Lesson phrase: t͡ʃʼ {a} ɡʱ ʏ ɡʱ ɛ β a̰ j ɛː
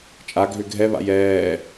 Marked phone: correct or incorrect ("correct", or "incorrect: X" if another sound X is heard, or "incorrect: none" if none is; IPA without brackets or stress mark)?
correct